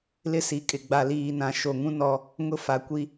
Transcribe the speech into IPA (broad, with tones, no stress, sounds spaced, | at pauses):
l ɪ˦ s i˨ kʼ ɪ˨ ɡ͡b a˨ l iː˨ n ã˨ ʃ o˨ ŋ ũ˦ n ɔ˦ | ŋ ʊ˦ f a˨ kʷ i˦